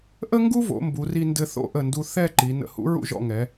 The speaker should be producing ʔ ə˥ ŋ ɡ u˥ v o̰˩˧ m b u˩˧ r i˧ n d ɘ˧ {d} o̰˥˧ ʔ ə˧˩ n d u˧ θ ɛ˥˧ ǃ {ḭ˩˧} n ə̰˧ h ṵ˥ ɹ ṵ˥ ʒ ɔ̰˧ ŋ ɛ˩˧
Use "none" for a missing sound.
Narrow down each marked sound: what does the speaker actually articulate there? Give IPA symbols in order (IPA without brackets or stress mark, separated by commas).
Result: θ, i˩˧